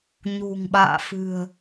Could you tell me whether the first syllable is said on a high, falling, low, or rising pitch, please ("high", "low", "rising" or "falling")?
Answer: low